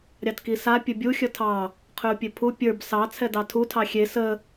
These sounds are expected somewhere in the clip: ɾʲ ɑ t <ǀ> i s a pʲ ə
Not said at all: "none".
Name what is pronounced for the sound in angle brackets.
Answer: k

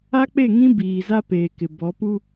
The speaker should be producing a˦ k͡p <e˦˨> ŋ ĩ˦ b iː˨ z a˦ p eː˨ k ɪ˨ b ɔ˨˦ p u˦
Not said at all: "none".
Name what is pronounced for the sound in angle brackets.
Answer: e˦˨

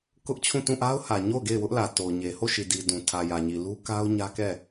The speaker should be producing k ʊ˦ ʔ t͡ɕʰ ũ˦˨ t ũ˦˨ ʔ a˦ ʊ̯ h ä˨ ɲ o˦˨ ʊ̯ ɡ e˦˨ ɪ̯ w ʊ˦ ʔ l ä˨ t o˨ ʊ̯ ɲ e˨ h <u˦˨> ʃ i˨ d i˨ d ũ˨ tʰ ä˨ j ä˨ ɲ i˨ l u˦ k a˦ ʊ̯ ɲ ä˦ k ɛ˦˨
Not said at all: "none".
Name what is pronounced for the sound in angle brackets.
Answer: o˦˨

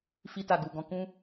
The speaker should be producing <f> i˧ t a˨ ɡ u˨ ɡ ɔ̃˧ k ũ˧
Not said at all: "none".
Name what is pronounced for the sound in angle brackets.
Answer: f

